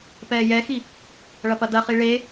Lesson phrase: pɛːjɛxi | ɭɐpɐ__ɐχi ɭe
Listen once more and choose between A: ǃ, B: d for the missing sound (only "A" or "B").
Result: B